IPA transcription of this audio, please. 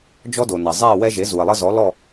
d͡ʒ ɔ˦ d o˩ n ɐ˩ zˤ ɛ˥˨ w ɛ˦ ʒ e˩˥ z u˩ ɐ̯ lˠ ɘ˦ z ɔ˩˥ l ɔ˥˨

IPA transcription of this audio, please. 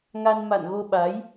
ŋ a˧ n m a̰˧˨ n ɣ o˧ ɓ a˨˦ j

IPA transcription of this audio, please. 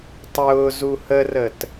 tˤ ʊː z u h ə r ə t

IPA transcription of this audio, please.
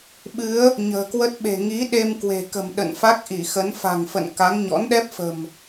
ɓ ɨ˨˦ ə̯ | ɲ ə̤ː˨˩ k w ə˦˥ t̚ ɓ e̤˨˩ ŋ i˨˦ ɗ e˧ m k w e̤˨˩ k ə̤˨˩ m ɗ ə̰˧˨ n f a˦˥ k̚ ʔ i˧˩ x ə˨˦ n f a̤˨˩ ŋ f ə̰˧˨ n k a˨˦ ŋ ɲ ɔ̰˧˥ n ɗ ɛ˦˥ p̚ f ə̤˨˩ m

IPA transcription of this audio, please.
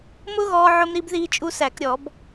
m ʊ˦˥ ɣ ɔː˧ ʕ ʊ˧ m ɾ i˧ b ð iː˧ t͡ʃʼ u˧ s æ˧˩˧ k ɾʲ ɔ˧˩˧ b

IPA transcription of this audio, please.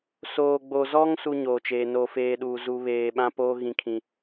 s oː˨ ɡ͡b o˨ z ɔ˦ ŋ s u˦ ɲ oː˨ t͡ʃ eː˨ n o˦˨ f eː˦ ɗ uː˨ z u˨ β eː˨ ɓ ã˦ p oː˦ ɣ ĩ˨ kʰ ĩ˨

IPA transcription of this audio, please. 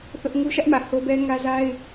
θ ʊ˦ ʔ ŋ u˦ ʃ ä˦ ʔ m ä˨ h o˦ b ɛ˦ ŋ ä˦ z a˦ ɪ̯

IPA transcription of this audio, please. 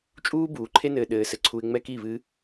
t͡ʃʼ uː˦ b uː˨ ǃʰ e˦ n ɘː˧ ɗ ɘː˧ s ɘ˧ ǀʰ u˧ ɪ̯ ŋ͡m ɛ˦ k i˦˨ β ɨ˦

